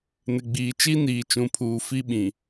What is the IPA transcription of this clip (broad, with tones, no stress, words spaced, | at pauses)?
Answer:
nɪ˨ɡ͡biː˨ t͡ʃi˦niː˨t͡ʃũ˨pʰuː˨ fi˦ɓĩ˨